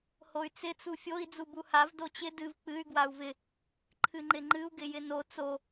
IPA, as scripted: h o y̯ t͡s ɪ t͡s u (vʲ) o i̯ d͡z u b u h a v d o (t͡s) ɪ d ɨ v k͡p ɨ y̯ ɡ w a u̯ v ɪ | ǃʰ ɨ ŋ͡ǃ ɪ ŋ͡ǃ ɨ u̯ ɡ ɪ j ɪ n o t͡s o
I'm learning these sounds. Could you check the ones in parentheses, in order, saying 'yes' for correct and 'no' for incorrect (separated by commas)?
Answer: no, no